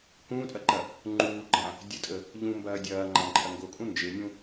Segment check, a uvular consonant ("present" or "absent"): absent